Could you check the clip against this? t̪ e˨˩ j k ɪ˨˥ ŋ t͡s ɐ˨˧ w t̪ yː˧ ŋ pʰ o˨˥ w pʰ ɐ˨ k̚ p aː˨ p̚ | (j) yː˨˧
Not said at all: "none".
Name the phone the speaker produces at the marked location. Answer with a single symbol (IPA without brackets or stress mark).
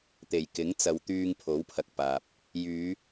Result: j